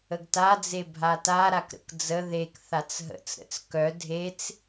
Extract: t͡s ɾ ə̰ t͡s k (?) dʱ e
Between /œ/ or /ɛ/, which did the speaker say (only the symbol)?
œ